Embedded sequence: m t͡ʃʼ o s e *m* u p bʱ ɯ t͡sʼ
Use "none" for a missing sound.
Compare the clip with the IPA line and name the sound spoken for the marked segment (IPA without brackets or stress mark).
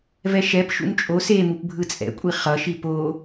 m